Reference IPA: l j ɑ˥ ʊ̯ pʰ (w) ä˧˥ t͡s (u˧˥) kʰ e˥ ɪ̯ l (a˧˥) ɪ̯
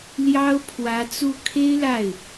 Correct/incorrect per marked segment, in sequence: correct, incorrect: u˥˩, incorrect: a˥˩

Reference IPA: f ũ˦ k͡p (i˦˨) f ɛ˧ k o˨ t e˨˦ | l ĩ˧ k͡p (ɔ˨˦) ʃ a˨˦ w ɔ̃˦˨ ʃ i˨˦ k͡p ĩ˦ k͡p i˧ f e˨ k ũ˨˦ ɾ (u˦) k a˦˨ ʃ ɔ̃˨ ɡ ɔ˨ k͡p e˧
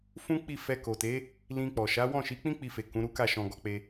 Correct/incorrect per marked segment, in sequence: correct, incorrect: ɔ˨, correct

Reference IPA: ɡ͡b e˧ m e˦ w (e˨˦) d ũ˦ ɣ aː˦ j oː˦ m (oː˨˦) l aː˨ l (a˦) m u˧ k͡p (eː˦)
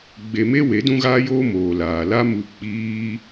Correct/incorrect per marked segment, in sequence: correct, incorrect: oː˨, correct, incorrect: iː˦

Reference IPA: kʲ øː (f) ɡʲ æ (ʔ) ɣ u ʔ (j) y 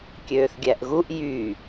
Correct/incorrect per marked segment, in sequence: incorrect: θ, correct, correct

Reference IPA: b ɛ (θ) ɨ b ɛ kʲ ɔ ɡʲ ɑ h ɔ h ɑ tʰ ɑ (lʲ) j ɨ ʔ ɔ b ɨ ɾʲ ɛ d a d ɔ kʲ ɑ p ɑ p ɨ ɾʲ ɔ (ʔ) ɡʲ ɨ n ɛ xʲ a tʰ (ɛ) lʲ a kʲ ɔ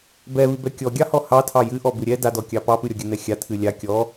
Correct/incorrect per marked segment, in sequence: incorrect: β, incorrect: none, incorrect: none, incorrect: ɨ

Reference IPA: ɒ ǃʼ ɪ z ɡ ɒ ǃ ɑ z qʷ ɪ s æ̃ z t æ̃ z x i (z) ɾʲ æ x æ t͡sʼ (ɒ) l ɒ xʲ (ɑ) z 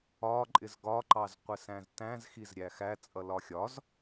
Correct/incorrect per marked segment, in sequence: correct, incorrect: ʌ, incorrect: ɒ

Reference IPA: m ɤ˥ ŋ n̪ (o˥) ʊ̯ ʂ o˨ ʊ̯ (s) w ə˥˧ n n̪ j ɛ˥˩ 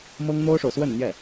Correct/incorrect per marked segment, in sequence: correct, correct

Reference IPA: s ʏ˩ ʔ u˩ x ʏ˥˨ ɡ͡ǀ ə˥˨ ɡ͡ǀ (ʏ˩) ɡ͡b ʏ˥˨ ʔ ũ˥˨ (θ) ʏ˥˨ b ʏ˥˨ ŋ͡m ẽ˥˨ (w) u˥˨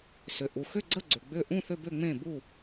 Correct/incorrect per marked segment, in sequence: correct, correct, incorrect: b

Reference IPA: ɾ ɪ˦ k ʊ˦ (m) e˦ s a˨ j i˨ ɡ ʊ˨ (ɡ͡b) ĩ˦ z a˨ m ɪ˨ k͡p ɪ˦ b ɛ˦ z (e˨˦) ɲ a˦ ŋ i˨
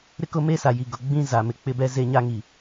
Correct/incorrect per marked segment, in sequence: correct, correct, incorrect: e˦

